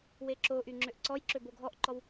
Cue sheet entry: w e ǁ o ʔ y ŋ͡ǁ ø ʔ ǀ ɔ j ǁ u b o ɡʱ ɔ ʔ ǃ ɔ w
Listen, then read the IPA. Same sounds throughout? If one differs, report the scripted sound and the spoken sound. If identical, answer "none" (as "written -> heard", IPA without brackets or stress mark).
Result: u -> ø